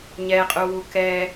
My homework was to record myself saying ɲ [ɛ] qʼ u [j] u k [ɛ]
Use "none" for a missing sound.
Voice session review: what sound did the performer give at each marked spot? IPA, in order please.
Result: ɛ, w, ɛ

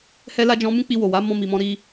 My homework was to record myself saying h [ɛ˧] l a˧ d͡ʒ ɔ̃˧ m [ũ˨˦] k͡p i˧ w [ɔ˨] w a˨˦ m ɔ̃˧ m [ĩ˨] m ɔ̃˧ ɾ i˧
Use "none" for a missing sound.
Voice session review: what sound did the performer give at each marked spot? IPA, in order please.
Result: ɛ˧, ũ˦, o˨, i˨

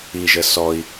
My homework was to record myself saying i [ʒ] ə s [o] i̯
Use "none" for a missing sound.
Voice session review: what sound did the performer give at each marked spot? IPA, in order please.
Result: ʒ, ɔ

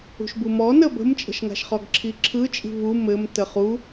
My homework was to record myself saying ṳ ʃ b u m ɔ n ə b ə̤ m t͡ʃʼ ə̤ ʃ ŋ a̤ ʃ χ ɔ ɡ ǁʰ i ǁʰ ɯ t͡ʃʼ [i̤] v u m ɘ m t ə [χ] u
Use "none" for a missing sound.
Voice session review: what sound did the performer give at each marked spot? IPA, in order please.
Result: i̤, χ

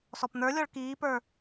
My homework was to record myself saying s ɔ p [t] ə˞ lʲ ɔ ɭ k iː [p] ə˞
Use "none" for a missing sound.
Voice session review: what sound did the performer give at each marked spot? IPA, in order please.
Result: n̪, p

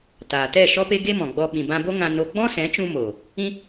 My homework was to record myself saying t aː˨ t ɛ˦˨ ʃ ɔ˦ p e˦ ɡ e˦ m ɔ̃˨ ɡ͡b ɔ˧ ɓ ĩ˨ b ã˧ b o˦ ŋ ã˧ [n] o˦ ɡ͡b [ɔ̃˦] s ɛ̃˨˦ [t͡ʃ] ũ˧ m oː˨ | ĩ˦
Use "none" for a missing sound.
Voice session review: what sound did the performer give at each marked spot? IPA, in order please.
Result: n, ɔ̃˦, t͡ʃ

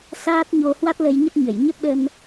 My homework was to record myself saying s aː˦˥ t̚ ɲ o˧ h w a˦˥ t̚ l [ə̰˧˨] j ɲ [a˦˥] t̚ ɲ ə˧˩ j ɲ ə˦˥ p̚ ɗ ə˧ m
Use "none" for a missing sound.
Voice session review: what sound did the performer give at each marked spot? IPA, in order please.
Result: ə˧, ə˦˥

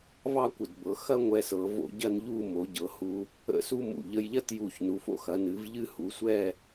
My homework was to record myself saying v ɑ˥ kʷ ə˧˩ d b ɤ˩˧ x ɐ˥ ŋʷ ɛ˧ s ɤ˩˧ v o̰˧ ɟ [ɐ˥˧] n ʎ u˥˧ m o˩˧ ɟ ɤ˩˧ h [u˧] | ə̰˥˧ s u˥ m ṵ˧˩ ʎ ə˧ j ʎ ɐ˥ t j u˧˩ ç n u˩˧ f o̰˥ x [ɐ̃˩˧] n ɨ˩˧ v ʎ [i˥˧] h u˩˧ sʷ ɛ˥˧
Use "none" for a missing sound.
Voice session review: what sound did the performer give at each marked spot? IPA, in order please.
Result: ɐ˥˧, u˧, ɐ˩˧, ɨ˥˧

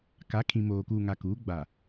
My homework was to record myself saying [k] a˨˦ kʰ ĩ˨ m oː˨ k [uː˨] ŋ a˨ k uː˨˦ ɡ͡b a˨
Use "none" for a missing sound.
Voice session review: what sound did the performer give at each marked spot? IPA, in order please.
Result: k, uː˨

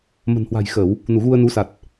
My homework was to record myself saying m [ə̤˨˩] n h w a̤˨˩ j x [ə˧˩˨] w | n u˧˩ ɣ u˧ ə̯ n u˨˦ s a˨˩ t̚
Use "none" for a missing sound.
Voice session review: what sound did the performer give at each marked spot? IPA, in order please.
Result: ə̤˨˩, ə˧˩˨

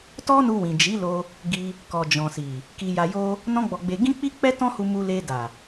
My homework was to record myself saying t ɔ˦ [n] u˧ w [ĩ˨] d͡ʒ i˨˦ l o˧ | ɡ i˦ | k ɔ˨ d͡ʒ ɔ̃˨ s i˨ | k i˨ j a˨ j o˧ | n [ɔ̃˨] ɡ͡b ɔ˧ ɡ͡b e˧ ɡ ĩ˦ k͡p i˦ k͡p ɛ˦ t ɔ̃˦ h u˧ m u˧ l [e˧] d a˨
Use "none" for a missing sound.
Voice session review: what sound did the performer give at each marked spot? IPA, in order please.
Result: n, ĩ˨, ɔ̃˦, e˧

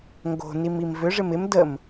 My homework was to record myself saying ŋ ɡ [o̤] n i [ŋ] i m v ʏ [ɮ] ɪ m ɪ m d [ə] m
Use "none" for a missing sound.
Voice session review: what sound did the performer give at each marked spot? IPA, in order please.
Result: o̤, m, ʐ, ə

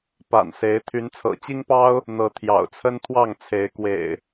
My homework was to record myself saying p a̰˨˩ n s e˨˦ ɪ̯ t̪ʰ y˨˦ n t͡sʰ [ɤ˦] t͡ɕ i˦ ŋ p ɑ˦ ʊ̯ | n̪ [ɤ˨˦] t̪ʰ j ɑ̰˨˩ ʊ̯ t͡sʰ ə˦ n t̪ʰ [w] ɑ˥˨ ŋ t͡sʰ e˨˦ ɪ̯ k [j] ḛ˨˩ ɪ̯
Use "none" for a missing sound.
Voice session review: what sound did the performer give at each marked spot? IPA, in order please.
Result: ɤ̰˨˩, ɤ˨˦, w, w

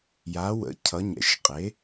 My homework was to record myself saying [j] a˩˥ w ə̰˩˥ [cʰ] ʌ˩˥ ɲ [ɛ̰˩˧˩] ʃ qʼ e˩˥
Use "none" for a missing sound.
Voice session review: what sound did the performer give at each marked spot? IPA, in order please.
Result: j, cʰ, ɛ̰˩˧˩

